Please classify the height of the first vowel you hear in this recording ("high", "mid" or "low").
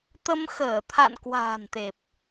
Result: mid